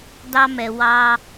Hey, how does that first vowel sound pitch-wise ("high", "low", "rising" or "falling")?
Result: high